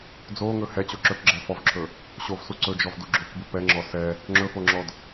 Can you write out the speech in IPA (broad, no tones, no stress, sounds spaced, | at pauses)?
d͡z o ŋ ɵ h ɛ t͡ɕ o ǁ ɵ k ɡ͡ǁ ɛ f ɔ v ǁʰ ɵ | ɕ o v s u ǀ ɵ d͡ʒ ɔ v d u ɡ͡ǁ o k b u p ɛ ŋ͡ǁ ɔ s ɛ | ŋ͡ǁ ɵ f o ŋ͡ǁ ɔ d